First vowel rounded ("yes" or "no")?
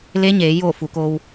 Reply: no